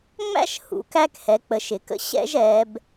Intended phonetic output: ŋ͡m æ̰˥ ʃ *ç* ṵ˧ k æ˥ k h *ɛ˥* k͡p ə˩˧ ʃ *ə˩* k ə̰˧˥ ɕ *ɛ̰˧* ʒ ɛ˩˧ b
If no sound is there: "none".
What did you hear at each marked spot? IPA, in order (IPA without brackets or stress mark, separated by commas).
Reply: h, ɛ˩˧, ɪ˩, ɛ̰˥